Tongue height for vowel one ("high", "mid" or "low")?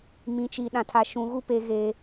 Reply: high